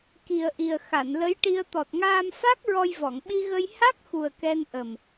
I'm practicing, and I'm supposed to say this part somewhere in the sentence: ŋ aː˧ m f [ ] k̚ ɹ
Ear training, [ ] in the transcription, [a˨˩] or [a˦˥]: a˦˥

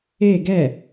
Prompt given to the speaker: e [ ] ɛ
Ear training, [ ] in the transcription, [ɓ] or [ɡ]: ɡ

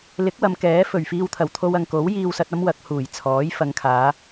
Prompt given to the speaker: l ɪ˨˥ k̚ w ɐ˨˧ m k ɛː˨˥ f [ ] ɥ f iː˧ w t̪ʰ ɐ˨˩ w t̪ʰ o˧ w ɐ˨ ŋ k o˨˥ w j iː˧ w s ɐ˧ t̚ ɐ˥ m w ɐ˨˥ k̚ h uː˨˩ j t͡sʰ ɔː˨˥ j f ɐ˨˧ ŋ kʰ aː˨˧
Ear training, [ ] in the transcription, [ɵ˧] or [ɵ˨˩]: ɵ˨˩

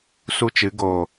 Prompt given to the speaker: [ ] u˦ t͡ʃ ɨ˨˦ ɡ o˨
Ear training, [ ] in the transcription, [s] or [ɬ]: s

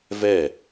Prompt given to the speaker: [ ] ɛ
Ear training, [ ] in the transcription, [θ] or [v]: v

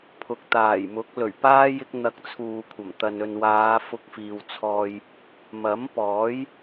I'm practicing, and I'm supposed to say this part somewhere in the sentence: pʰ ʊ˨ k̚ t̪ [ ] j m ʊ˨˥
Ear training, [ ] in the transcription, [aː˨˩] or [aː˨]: aː˨˩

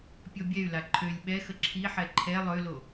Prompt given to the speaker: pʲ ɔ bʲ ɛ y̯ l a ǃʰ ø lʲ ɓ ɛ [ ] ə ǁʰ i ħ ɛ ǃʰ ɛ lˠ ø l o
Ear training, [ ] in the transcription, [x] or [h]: x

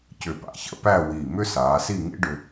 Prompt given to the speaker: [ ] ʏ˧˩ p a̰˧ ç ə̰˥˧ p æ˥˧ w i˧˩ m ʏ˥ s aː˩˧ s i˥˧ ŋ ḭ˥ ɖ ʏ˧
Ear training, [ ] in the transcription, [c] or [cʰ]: c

